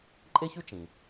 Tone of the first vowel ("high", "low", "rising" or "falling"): high